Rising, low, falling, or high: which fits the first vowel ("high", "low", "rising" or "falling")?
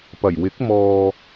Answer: low